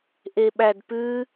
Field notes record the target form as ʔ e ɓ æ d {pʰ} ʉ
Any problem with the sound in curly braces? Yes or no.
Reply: yes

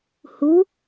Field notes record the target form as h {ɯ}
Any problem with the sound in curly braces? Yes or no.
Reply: yes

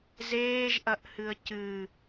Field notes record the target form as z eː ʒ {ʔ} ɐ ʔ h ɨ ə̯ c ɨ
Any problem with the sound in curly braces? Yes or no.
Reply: no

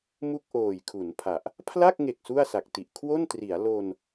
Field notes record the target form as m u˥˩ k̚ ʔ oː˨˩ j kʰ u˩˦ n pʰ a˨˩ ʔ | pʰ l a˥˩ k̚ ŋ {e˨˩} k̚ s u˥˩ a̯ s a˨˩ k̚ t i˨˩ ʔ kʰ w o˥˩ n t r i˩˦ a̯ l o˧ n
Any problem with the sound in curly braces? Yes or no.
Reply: no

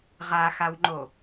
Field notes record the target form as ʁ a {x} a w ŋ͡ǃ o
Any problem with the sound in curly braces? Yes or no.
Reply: no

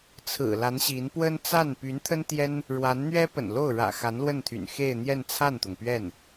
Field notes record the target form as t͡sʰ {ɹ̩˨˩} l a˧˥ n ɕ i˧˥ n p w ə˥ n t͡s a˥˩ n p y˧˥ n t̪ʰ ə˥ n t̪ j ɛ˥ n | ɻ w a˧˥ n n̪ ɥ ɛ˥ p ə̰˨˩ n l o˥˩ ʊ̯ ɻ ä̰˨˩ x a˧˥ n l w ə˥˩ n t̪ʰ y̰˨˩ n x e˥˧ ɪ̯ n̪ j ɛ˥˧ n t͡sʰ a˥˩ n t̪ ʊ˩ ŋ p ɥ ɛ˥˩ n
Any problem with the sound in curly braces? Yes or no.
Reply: no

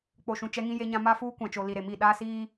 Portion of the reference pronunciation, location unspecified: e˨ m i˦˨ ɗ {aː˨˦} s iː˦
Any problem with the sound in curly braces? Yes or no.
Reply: yes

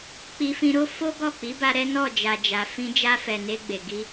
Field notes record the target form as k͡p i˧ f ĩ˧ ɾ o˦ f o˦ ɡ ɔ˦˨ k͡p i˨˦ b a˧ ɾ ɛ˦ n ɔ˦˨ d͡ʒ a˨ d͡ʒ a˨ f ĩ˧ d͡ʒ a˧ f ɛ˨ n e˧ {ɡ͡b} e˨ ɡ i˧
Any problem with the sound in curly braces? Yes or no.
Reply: no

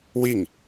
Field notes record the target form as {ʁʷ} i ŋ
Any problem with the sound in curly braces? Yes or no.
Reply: yes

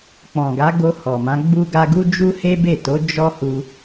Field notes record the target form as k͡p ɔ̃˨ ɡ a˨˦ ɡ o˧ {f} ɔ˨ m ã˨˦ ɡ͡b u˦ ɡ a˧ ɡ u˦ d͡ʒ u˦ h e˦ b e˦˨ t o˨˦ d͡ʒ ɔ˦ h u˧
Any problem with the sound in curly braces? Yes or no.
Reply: yes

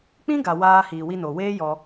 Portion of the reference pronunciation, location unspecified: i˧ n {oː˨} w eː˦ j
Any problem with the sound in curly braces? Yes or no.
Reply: yes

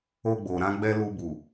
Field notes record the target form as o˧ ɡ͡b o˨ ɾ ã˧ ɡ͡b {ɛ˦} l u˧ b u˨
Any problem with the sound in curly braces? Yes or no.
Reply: yes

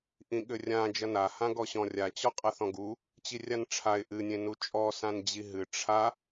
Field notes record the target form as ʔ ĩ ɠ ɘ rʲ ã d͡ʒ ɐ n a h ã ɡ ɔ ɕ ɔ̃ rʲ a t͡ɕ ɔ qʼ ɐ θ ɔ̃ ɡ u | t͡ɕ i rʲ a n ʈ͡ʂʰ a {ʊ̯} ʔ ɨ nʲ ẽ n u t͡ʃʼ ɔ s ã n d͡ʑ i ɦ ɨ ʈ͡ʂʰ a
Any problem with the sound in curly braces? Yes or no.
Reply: yes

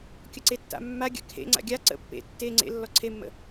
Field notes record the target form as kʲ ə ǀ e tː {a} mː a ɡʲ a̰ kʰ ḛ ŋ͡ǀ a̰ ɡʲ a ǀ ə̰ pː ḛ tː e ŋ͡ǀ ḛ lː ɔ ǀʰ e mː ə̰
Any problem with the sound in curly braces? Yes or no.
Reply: yes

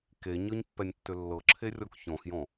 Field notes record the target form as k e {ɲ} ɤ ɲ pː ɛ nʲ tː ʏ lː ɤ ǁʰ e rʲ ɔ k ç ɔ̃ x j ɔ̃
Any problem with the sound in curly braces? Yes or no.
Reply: no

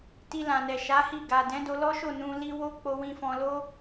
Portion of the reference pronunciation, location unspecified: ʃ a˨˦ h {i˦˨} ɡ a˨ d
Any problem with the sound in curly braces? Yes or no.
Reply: no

